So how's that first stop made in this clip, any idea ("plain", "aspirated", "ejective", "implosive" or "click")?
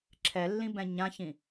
click